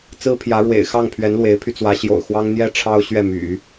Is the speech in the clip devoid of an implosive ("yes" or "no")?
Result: yes